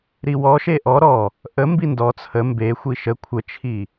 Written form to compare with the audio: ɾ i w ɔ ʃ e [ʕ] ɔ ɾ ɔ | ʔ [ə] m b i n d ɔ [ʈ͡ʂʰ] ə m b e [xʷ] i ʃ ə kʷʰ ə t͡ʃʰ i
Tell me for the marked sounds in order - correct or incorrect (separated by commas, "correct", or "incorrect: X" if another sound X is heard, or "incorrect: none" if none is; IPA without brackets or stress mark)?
incorrect: ʔ, correct, incorrect: t͡sʰ, correct